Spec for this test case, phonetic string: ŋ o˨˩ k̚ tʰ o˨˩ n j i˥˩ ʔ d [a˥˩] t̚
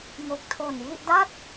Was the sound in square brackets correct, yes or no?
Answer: yes